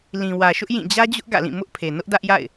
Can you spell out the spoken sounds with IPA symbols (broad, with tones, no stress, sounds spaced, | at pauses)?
l ĩ˨ w ä˨ ʃ ʊ˦ ʔ j ĩ˦˨ d͡ʑ ä˦ d͡ʑ ʊ˦ ʔ ɡ ä̰˦˨ l ĩ˦˨ m ʊ˦ ʔ pʰ e˨ n ʊ˦ ʔ d ä˦ ʔ j a̰˦˨ ɪ̯